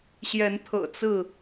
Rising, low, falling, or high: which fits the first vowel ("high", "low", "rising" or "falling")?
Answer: rising